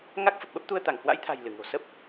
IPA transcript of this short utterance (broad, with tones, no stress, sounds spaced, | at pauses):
ŋ a˦˥ k̚ f ə˨˩ p̚ ɓ ə˦˥ p̚ t̪ u˧ ə̯ t̪ a˧˩ ŋ h w a̰˧˥ j t̪ʰ a̤˨˩ j l ɨ˧˩ ŋ o̤˨˩ s ə˦˥ p̚